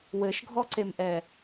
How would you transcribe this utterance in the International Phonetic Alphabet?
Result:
w ɘ ʃ ɡʱ ɔ ǀ e m ʔ ɛ

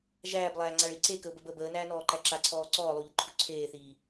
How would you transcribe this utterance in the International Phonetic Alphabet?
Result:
ʒ æː b lˠ æː ŋ͡ǀ a ɭ i ǀ e k ə ʊ̯ b ə b əː b əː n æː n ɔː ǃ æ ǁ a ǀʰ ɔː ǀ ɔː lˠ u ʎ ə ǃʰ u ǀʰ eː θ iː

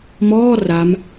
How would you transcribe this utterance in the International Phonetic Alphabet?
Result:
m ɔː r a m

